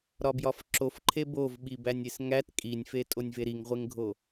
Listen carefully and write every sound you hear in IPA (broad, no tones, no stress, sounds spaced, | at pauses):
ɾ ɒ b j ɒ f ǁ o f ǃʰ e b o v ɓ i b æ nʲ e s ŋ æ t kʼ i nʲ f e tʼ o nʲ v e ɾ i ŋ ʁʷ e ŋ ɡʱ o